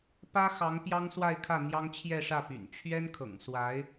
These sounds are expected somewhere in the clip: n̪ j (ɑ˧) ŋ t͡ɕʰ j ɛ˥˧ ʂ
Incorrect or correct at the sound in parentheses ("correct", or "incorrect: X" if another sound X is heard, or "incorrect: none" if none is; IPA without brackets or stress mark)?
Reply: incorrect: ɑ˥